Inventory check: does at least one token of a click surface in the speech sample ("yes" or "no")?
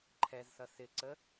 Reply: yes